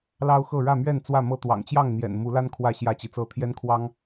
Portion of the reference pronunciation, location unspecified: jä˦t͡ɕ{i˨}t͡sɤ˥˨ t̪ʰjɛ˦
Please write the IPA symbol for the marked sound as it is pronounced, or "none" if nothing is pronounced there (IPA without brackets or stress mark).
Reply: i˨